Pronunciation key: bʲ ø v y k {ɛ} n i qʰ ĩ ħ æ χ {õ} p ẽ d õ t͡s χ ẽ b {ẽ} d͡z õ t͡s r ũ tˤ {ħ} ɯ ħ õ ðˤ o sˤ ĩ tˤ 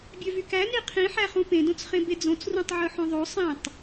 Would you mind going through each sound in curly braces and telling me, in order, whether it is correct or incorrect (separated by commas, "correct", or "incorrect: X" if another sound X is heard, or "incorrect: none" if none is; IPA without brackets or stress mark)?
incorrect: æ, incorrect: ũ, incorrect: e, incorrect: ʕ